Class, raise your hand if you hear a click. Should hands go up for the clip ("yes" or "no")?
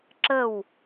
yes